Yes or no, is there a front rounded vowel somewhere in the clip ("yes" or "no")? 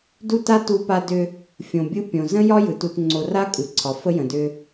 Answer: yes